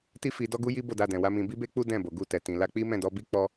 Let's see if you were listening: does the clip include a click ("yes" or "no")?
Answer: no